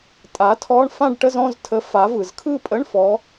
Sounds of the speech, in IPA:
tʼ a˩˥ tʰ ɔ˧˥˧ ɳ f ã˥˧ ɖ ʈ ə˧˥˧ z ɔ̃˥˧ z tʰ ə˩˥ f a˩˥ v ɯ˩ z kʰ ɯ˥˧ pʼ ə˧˥˧ ɳ f ɔ˩˥

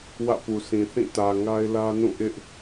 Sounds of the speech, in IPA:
w ä̰˦˨ p u˨ sʰ ĩ˨ θ ĩ˦˨ t ä˨ ŋ a˦ ɪ̯ l ä˦ n ũ˦˨ ʔ ɪ˦ ʔ

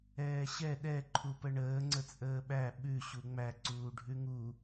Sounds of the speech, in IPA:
ɛː ɕ ɛ ɗ ɛ ǃʰ u p ə ɳ əː ŋ͡ǀ ə t͡sʼ əː ɓ æ ɓ ʉ ɕ u ŋ͡m æ ǀ uː ɖʱ ʉ ŋ u

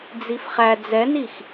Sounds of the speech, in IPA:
d͡z i f χ æ d͡z ɛ n i x

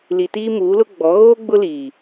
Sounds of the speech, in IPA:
l i˨ t iː˦ m uː˨˦ l ʊ˦ ɡ͡b ɔ˨˦ ɣ oː˦ ɡ͡b ʊ˦ l iː˨

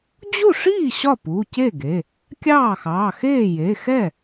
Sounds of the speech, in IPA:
d͡ʑ u˥˩ ʂ iː˥˩ ɕ ɒ˥˩ p u˩˧˩ c e˥˩ ɡ e˩˧˩ | kʲ ɑː˥˩ x ɑː˩˧˩ x eː˥˩ j e˩˧˩ x ɛ˥˩

